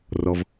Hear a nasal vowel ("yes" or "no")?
no